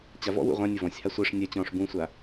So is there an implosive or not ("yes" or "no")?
no